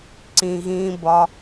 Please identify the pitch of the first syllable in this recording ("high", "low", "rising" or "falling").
low